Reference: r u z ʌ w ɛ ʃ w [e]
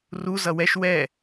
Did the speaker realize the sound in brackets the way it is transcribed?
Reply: no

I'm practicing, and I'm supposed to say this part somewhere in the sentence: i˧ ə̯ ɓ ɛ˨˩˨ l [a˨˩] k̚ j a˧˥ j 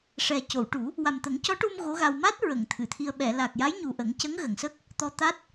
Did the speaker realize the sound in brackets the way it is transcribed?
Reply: yes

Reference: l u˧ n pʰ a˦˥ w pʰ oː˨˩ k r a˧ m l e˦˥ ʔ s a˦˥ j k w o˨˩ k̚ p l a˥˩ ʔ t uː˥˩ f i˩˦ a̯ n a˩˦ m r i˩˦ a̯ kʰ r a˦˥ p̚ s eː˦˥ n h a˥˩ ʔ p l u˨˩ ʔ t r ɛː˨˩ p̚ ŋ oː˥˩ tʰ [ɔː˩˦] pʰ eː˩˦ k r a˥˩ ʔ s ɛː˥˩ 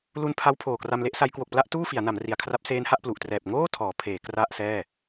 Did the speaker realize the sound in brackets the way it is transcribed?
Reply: yes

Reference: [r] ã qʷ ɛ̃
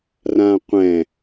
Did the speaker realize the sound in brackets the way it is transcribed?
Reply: yes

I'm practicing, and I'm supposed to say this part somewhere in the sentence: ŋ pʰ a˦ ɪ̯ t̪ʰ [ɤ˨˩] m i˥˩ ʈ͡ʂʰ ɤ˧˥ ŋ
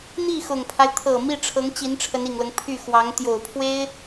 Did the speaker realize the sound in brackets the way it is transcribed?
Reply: yes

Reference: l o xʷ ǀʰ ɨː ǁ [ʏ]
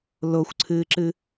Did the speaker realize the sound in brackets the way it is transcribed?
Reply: no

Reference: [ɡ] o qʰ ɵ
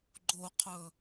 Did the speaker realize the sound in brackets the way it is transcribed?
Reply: no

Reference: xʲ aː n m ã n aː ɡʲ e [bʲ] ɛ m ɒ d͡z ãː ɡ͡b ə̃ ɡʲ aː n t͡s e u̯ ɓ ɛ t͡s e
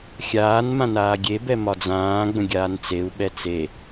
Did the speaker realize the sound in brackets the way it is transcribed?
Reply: no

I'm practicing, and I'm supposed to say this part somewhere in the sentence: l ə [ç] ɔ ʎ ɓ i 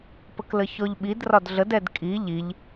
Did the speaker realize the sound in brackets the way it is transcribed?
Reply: yes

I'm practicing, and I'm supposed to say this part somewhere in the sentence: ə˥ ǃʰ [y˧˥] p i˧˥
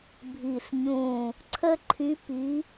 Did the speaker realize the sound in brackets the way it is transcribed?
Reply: yes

